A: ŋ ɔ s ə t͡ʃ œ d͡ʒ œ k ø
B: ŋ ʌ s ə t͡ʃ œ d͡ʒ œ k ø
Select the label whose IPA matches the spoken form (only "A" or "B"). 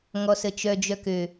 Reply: A